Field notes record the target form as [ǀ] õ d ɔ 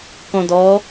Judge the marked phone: incorrect: k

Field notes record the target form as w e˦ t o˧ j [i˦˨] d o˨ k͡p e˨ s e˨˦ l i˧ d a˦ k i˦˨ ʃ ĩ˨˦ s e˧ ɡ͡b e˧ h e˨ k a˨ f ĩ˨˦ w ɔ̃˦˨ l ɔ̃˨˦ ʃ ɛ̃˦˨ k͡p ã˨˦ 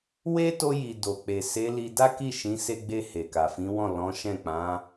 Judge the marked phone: incorrect: i˨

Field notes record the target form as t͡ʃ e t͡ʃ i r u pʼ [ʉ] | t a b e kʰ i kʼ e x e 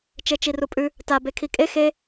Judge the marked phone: correct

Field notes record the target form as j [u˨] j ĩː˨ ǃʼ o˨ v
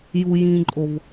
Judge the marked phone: correct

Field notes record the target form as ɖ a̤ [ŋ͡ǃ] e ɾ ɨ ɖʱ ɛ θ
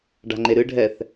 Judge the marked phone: correct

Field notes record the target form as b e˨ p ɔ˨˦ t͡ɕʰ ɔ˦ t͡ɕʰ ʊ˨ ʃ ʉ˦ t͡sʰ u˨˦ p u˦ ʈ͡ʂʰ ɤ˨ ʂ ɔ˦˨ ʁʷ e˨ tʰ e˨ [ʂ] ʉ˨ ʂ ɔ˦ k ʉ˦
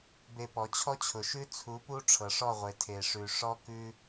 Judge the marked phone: correct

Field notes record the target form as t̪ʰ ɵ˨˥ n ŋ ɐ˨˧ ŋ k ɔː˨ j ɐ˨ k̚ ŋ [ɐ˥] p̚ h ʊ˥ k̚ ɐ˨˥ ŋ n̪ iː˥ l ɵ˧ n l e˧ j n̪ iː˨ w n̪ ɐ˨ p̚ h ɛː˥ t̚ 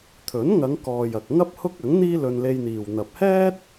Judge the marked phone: correct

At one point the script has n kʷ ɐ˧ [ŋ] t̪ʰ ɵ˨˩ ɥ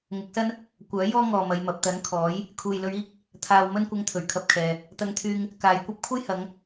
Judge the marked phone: correct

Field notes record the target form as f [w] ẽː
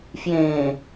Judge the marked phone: incorrect: j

